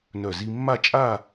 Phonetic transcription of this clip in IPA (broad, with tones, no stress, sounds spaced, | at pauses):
n œ˧˩ z i˧ mː a˥˧ t͡ʃʼ a˥˧